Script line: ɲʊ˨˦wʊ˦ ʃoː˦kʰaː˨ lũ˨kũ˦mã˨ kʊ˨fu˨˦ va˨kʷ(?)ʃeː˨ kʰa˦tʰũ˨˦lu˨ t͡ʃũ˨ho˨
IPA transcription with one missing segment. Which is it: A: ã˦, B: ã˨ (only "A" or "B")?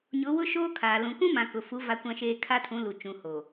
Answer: B